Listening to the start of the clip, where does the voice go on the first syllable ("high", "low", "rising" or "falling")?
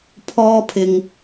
high